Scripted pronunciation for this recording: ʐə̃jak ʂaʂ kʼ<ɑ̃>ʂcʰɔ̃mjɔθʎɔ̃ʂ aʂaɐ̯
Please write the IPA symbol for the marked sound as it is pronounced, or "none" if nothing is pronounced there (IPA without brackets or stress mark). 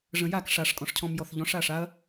ɔ̃